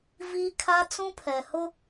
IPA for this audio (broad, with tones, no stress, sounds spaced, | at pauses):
v iː˦ kʰ a˦ t͡s ũ˦ pʰ ɛ˨ h ʊ˦